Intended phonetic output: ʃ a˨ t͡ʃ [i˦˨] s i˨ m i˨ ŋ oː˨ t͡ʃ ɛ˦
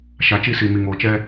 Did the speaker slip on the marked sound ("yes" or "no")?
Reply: no